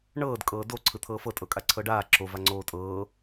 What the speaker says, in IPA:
ɳ ɤː d kʼ ɤː d o ǀʰ ɯ t̪ʰ ɤː f ɤ tʼ ɤ kʼ a ǀʰ ɤ ɖ aː ǁ o v a ŋ͡ǀ oː tʼ ɤː

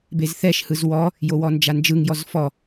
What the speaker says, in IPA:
b e z θ ɛ ʃ h ɯ z w ɔ | j o w ɔ n d͡ʒ a n d͡ʒ ɯ ŋ j ɔ z f ɔ

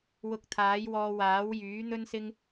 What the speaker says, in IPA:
w ʊ˧ k̚ t̪ʰ aː˨˥ j w ɔː˧ w aː˨˥ w j yː˨˥ n̪ ɵ˥ n s ɪ˥ ŋ

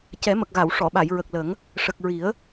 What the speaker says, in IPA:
c ɛ˨˩˦ m ə˨˩ k̚ ɣ a˨˩˨ w ʂ ɔ˨˩˨ ɓ a˨˩˨ j ɹ ə˨˩ k̚ l ə˨˩˦ ŋ | ʂ ə˨˩ k̚ ɹ i˨˩˦ ə̯

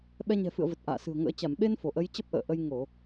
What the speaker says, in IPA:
ɓ ɛ˧ ɲ ɛ̤˨˩ f ɨ̰˧˨ ə̯ v ə˨˩ t̚ ʔ a̰ː˧˨ s ɨ̤˨˩ ə̯ ŋ ə̰ː˧˥ t͡ɕ a˧˩ m ɓ e˧ n f o˧˩ ʔ ə˨˦ j t͡ɕ ə˦˥ p̚ ʔ ə̰ː˧˨ ʔ ə˧ j ŋ o˧˩˨

